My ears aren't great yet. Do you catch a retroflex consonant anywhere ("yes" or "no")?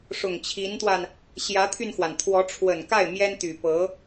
yes